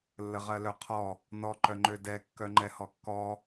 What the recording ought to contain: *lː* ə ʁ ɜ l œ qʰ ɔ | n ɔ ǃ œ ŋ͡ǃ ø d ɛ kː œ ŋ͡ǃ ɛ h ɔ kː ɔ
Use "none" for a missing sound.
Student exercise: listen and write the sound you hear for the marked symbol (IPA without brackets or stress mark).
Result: lː